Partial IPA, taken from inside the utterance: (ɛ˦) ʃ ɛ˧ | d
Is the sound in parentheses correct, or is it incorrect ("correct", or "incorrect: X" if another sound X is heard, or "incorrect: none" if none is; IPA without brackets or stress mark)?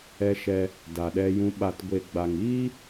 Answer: incorrect: ɛ˧